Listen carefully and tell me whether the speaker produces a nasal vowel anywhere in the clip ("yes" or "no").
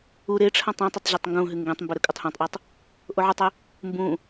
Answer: yes